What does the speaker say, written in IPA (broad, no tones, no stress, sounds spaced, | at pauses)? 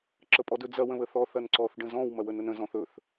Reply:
ǁ ə pʼ ɔ d ɵ d͡z ɐ w ə̃ β ə θ ɔ θ ɐ n ǀ ɔ θ ɖ ə̃ z ɔ̃ w m ɐ w ə n ə n ə̃ z ɔ̃ θ ɵ θ